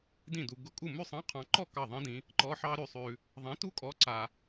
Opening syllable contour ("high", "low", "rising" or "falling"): falling